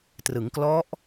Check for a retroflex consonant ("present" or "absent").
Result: absent